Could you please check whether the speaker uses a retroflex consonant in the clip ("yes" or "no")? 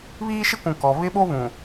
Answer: no